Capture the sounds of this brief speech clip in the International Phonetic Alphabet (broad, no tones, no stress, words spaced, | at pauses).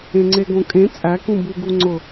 ẽŋ͡ǀeɡõkʼẽ t͡sʼækũ buɡu ŋ͡ǀʊ